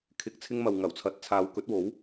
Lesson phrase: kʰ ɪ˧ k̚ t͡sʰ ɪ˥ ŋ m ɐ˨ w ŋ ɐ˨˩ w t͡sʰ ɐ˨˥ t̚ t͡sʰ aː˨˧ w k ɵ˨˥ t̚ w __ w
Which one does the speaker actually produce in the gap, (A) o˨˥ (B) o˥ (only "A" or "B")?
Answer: A